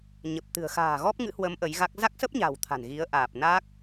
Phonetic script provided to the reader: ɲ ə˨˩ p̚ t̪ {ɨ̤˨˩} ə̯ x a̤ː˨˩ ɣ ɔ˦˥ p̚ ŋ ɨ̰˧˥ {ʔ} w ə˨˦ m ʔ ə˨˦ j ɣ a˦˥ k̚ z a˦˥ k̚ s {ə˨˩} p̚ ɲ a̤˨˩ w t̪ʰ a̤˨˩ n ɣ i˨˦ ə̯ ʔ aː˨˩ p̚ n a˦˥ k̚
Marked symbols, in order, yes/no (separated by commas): yes, no, no